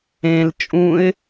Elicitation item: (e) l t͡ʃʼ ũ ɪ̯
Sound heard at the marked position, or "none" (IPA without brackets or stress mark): ẽ